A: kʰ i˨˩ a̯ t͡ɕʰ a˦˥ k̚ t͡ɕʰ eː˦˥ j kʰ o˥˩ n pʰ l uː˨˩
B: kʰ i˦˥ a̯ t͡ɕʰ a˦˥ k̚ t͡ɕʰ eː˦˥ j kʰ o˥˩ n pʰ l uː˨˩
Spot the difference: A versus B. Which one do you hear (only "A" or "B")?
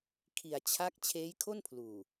A